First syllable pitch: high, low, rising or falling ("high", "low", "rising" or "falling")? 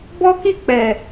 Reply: high